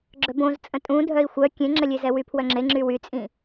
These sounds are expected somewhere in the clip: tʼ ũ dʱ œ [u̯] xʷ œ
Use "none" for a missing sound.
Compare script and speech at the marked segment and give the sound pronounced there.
i̯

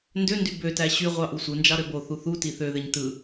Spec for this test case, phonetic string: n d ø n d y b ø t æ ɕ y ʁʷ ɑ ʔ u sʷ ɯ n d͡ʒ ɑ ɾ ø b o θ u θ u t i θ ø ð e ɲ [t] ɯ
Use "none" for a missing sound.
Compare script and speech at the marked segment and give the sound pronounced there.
t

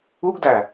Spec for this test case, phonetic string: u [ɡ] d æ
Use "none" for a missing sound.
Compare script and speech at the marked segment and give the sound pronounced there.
ɡ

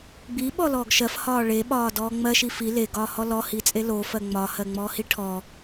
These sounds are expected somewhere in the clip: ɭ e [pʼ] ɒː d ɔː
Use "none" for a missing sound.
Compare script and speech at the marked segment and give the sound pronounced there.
ɓ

